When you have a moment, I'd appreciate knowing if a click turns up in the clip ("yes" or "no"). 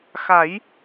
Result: no